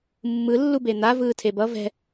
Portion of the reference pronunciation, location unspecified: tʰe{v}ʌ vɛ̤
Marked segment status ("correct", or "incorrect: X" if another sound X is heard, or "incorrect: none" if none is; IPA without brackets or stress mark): incorrect: b